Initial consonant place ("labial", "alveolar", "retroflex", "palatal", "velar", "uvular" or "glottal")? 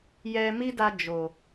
palatal